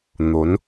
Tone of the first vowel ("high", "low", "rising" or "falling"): rising